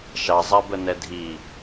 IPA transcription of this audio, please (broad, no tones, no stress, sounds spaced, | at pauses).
ʃ ɑ zˤ a b ə n ɛ dʱ i